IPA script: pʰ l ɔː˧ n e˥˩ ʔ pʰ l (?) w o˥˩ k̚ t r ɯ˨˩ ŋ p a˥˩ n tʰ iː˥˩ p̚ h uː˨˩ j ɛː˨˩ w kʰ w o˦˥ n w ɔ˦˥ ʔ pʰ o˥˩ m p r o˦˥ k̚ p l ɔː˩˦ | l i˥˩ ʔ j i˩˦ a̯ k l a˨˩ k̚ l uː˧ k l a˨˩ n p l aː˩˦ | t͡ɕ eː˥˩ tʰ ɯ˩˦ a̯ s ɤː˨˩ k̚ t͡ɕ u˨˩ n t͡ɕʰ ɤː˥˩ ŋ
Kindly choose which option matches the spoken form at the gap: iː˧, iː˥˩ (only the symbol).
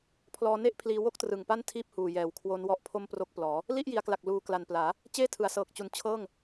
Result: iː˧